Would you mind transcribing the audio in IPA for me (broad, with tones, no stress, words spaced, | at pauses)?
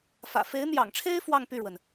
fä̰˨˩ fe˧˥ɪ̯n̪jɑ̰˨˩ŋʈ͡ʂʰe˥ɪ̯ fwɑ˥˧ŋpy˥˩ɻwə˩n